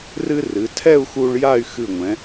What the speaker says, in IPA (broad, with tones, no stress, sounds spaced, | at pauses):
r ɨ˥ r ɨ˩˧ tʰ ɛ˥˧ u̯ x u˧ ɭ j a˥˧ y̯ x ɨ˧˩ ŋʷ ɛ̃˩˧